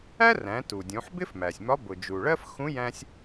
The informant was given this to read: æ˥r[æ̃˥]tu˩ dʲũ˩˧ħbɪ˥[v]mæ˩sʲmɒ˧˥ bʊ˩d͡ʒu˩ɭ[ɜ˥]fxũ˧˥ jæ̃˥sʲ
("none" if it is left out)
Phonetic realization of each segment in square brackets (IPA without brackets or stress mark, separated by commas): æ̃˩˧, f, ɜ˥